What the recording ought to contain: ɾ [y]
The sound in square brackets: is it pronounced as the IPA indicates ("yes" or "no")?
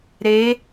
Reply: no